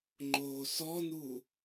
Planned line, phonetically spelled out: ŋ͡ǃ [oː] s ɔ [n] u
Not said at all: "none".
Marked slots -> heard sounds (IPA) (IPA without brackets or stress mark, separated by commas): oː, n